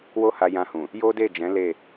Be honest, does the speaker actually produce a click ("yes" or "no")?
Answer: no